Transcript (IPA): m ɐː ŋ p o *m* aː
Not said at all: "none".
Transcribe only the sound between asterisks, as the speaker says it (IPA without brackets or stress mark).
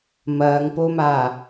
m